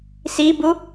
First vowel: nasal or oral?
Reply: oral